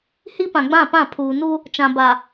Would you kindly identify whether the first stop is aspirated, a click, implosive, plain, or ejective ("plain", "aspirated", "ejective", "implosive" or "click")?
plain